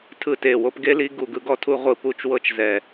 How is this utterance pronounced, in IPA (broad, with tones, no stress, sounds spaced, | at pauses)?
tʰ ɯ˦˨ t e˦˨ w o˦ p ɡ e˦ l i˦ ɡ u˦˨ ɡ ɯ˦ ɡ ɔ˦ tʰ u˦ ʁʷ ɯ˦˨ p u˦ t͡ʃ w ɤ˦ t͡ʃ z ɛ˦˨